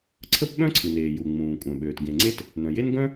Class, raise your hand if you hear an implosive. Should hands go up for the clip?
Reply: yes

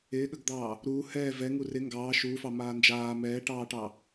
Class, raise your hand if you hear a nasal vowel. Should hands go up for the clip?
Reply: no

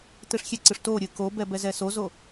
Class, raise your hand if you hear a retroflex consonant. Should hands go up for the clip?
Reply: yes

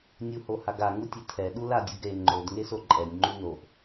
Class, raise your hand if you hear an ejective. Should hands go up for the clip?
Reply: yes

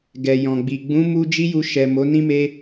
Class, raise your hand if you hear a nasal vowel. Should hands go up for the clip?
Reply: yes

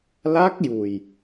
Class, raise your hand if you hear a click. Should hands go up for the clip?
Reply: no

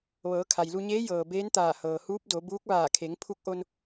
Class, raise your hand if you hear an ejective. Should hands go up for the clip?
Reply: no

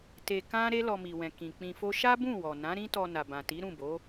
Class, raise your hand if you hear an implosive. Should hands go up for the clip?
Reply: no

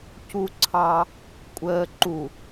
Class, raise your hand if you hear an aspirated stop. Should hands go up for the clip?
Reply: yes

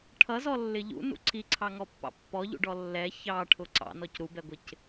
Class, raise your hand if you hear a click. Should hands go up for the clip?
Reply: yes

